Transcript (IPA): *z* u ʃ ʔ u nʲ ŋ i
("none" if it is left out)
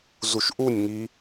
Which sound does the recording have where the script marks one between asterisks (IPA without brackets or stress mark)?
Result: z